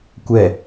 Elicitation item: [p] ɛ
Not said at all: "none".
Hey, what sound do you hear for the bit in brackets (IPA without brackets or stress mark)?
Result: kʷ